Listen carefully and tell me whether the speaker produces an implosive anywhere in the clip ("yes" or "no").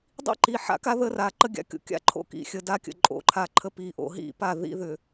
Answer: no